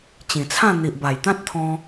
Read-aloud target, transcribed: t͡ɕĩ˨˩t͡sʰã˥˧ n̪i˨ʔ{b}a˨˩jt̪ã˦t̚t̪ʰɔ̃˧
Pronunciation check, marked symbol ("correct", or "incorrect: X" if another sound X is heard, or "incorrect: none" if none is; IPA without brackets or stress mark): correct